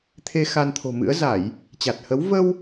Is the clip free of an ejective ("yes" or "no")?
yes